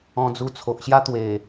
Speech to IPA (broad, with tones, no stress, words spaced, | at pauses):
ɔ̃˧d͡zu˧t͡sʰo˨ʔɕja˦ t̪we˨˩